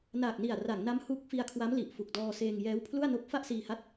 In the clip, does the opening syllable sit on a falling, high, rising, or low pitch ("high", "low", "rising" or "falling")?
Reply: low